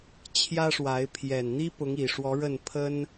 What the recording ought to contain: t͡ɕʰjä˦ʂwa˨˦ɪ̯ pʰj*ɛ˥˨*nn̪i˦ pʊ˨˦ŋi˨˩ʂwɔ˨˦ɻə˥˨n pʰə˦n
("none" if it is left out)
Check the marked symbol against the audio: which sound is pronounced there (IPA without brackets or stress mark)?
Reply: ɛ˨˩